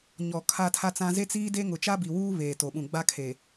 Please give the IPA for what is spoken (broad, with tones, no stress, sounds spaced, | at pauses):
ɲ ɔ˨ kʰ a˦ tʰ a˦ t͡s ã˦ z e˦ t͡s iː˦ d e˦ ŋ ʊ˨ t͡ʃ a˦ b i˨ w uː˦ β eː˨ t o˨ ɓ ũ˨ ɡ͡b a˦ kʰ e˨